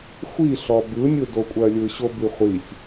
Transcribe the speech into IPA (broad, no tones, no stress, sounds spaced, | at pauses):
xʷ i ɬ ɔ b ɯ nʲ ɯ d o kʷʼ ɜ lʲ ɯ ɕ o b i χʷ i sʲ